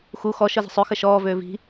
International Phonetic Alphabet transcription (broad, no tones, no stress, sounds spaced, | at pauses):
x u x ɔ ʃ ɤ z ə̤ sˤ ø x ə ʃ ɔː v øː v i̤